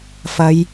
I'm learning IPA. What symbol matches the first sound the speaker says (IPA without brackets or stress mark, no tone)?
f